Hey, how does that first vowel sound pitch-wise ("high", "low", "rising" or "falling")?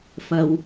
low